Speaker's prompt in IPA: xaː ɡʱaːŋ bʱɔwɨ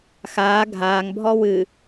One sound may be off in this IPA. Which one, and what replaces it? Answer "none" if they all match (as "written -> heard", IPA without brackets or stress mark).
none